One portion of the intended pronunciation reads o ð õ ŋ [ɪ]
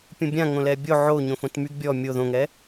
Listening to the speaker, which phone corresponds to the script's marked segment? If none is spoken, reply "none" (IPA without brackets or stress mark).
ɛ